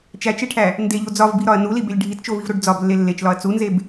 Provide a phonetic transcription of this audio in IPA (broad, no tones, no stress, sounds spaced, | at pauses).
t͡ʃ æ t͡ʃ e ʈʰ æ | n d e ʎ o d͡z ɒ v b i ɾ ɒ ɐ̯ n u l i b e lʲ ɖʱ i t t͡ʃ o v i v ɾ o ɖ d͡z ɒ b lː e lː e t͡ʃ l ɒ ɐ̯ t͡s u n z e b